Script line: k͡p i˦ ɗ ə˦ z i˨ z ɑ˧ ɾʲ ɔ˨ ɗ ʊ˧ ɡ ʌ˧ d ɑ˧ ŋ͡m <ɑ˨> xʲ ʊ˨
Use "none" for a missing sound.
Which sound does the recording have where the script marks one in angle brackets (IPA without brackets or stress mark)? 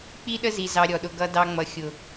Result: ʌ˨